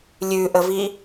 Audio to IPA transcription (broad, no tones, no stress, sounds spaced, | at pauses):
lʲ ʉ ʔ ə v i